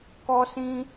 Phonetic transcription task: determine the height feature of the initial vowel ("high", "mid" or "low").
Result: mid